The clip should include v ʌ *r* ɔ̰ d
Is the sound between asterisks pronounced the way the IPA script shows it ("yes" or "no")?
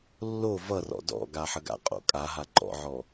yes